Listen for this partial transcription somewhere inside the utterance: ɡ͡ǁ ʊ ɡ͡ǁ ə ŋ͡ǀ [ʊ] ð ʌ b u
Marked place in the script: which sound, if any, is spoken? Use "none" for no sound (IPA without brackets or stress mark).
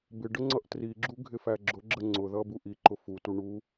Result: ʊ